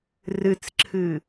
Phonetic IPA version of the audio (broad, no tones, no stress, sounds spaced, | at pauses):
r ɨ t͡s ǁʰ ɨ